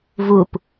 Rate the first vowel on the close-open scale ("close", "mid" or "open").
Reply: close